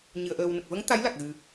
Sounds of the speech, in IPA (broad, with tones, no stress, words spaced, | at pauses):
ɲɨ˨˩ə̯ʔəː˨˩wnə˨˩k̚və˧˥ŋ t̪a˧˥jla˨˩k̚ɣɨ˨˩